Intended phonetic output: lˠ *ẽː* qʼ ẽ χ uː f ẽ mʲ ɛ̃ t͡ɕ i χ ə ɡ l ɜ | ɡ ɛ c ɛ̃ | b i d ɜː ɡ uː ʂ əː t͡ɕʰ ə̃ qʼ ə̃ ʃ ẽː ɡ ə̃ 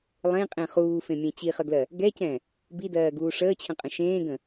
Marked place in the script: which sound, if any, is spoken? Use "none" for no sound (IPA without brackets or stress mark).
ẽ